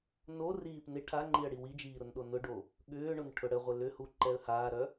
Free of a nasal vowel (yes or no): yes